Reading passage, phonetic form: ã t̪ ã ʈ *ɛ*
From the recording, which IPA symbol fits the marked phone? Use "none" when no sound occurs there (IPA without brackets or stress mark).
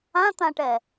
ɛ